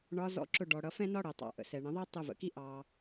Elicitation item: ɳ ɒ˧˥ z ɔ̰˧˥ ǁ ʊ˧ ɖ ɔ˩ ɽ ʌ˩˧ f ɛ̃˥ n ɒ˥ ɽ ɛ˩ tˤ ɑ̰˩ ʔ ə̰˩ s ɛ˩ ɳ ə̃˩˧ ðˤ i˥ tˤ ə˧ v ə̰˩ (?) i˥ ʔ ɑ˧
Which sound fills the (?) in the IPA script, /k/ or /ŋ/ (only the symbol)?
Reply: k